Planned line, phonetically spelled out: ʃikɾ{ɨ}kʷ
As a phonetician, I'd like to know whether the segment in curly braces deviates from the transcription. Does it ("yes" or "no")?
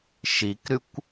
no